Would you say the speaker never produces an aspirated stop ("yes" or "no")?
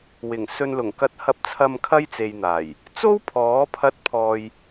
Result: no